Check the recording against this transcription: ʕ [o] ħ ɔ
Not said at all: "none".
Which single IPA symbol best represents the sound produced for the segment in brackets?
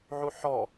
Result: u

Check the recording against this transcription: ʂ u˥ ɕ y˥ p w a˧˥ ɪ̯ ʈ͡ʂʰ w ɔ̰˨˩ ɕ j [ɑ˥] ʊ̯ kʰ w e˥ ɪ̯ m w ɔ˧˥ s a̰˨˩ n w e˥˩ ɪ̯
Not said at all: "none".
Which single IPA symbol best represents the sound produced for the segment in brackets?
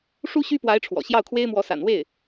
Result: ɑ˥˩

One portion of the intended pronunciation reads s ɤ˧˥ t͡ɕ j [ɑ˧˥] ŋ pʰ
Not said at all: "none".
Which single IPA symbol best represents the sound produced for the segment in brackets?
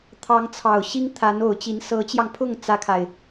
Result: ɑ˧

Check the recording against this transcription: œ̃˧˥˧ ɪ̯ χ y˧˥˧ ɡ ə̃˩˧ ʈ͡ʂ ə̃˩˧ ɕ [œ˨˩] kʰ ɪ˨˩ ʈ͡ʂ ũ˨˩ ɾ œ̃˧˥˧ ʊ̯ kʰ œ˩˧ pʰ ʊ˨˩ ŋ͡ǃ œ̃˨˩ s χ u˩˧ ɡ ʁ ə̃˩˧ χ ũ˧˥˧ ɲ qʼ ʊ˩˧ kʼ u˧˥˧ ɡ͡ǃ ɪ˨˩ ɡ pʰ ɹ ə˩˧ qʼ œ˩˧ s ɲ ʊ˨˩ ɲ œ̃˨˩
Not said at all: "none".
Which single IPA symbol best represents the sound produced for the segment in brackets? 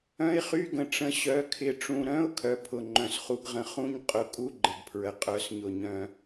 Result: œ˩˧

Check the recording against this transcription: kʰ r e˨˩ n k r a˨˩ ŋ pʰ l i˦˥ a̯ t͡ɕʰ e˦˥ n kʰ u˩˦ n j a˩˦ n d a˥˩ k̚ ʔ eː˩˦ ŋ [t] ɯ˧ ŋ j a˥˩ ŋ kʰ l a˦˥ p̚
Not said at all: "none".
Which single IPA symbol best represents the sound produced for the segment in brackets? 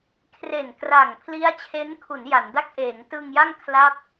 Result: t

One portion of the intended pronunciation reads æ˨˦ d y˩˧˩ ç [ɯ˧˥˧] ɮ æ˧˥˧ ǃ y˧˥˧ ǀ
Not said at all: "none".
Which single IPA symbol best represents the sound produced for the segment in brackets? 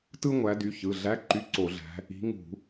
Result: ɯ˩˧˩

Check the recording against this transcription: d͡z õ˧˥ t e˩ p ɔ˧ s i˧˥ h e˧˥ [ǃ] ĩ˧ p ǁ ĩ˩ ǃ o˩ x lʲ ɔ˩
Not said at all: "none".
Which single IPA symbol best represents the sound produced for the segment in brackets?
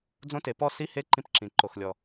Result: ǃ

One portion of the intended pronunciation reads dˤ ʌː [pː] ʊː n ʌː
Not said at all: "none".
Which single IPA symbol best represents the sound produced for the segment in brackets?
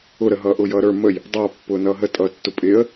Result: pː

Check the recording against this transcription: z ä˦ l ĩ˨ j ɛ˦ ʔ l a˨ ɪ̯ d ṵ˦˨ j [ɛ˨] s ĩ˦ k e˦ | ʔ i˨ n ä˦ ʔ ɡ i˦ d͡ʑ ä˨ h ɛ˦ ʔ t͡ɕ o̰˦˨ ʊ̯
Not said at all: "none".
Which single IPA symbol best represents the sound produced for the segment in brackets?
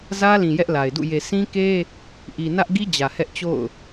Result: e˨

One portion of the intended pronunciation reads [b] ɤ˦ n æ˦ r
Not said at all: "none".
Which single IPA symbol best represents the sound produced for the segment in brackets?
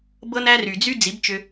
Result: b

